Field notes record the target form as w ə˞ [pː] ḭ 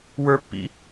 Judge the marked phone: correct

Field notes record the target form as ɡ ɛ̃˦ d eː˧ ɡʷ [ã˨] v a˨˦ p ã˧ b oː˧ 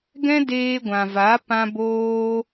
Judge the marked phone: correct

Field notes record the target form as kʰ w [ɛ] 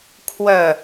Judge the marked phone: incorrect: œ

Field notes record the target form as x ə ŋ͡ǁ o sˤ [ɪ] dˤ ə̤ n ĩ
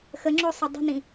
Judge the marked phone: incorrect: ə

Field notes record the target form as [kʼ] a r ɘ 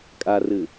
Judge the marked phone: correct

